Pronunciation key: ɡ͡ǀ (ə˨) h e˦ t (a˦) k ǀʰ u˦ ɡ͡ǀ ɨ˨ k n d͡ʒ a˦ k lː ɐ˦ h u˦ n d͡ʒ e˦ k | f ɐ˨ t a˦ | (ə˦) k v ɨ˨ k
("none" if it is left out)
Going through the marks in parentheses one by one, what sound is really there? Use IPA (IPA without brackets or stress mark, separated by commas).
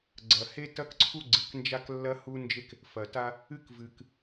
ɐ˨, ɐ˦, ɨ˦